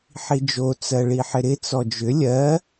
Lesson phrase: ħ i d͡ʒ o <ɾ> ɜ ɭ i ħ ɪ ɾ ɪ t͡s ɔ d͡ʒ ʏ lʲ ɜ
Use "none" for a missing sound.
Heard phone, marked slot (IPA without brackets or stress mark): t͡s